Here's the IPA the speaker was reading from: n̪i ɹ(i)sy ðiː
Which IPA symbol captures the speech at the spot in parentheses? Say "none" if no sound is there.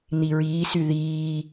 iː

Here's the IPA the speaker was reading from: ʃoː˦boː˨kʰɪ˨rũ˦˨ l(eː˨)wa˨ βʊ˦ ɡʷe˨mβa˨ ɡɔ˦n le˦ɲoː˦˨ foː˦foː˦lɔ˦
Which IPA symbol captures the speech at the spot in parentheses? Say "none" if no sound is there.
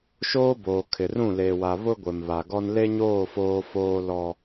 eː˨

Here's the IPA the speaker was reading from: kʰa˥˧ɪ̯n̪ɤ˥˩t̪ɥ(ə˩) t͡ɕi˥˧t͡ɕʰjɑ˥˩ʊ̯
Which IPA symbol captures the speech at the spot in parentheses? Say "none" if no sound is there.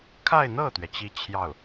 ɛ˩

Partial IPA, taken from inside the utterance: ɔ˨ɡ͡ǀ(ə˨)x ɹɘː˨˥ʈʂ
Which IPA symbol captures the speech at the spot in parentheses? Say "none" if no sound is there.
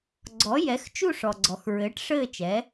ɔ˨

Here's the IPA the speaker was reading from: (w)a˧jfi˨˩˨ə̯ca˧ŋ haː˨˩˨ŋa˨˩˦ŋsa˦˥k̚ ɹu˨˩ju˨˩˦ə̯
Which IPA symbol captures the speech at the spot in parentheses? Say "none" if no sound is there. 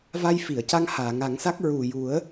v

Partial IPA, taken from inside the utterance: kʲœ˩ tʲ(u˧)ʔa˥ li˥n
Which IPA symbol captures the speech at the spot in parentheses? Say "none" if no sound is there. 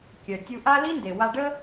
u˧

